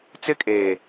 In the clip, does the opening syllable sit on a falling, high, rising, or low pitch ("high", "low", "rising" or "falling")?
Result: high